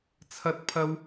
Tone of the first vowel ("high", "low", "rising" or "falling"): high